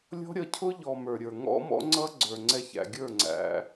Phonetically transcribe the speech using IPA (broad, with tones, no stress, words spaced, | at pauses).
lʲɔ̤˦ɾʲʌ˧cʰʊ˦ ʎɔ˨ mə˞˨ɾʲə˞˨ ŋɔ̰˦mɔ̰˦ ŋ͡ǀʌ˦ ɡ͡ǀə˞˨ŋ͡ǀɛ˧çæ̰˨ɡʲə˞˦˨ ŋ͡ǀæ̰˧